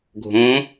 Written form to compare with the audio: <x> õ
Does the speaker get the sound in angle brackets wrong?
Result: yes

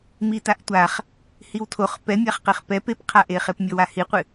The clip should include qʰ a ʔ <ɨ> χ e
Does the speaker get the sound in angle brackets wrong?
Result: yes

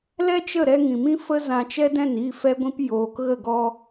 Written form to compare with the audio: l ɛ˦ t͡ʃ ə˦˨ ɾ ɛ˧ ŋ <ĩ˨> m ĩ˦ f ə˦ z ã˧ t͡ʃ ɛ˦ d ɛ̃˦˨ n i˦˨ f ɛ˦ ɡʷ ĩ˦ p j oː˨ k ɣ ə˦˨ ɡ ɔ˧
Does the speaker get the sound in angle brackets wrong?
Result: no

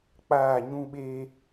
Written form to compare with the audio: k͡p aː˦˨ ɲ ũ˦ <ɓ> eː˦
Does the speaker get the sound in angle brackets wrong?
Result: no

